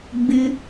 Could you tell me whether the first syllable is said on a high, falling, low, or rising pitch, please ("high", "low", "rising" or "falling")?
high